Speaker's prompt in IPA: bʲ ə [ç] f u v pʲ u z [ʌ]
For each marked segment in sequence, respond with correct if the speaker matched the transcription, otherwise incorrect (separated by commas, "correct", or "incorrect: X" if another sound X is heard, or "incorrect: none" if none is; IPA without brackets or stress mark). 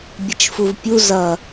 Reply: incorrect: t͡ʃ, correct